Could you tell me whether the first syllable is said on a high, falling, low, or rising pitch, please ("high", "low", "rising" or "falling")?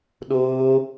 high